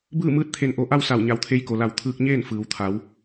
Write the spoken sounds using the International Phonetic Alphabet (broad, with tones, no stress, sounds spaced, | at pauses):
b ɯː˥˨ m ɯː˧˥ t̚ t̪ʰ e˧ n ʔ o˧˩ ʔ a˥˨ w s a˧˩ w ɲ a˩˧ w t̪ʰ e˧ j k o˩ l a˧˩ w t̪ʰ ɯː˧ k̚ ɲ eː˥˨ n f ɯː˩ w t̪ʰ a˩˧ w